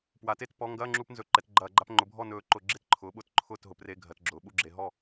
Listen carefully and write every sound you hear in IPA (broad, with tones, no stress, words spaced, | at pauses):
pwa˩˥te˥˩tpɔ˧˥˧ ŋɡɐː˧˥˧ŋ͡ǁu˧˩˧pnzɵ˩˥ ǃɛ˩˧tɡ͡ǃɐː˧˩˧ɡ͡ǃa˧˥˧p ŋ͡ǃʊ˩˥bʱɔ˥˩nɵː˧˩˧ ǃʊ˧˩˧ɡ͡ǁe˥˩tǃʰʊː˩˥ ɓʊ˧˥˧tǃʰʊː˥˩t ɦʊ˩˧pre˧˥˧ɡʱɜ˩˧tɡ͡ǁʊː˩˧ ɓu˥˩ɡ͡ǁe˧˩˧ɦɔ˥˩